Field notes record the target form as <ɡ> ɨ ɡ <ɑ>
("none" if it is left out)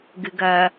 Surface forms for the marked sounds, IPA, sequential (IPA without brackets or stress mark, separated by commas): ɡ, ɐ